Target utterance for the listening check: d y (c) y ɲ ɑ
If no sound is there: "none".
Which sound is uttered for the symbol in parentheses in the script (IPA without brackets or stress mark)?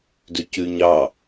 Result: c